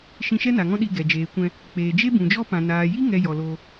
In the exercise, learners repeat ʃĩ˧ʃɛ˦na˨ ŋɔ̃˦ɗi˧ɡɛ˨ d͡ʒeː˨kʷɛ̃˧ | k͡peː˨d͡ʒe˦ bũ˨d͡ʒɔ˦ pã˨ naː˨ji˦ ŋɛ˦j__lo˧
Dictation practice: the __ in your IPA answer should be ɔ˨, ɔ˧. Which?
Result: ɔ˨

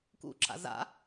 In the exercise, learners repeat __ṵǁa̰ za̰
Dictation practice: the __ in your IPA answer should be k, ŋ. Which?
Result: k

